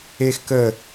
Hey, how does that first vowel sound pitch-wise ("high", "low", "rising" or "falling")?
high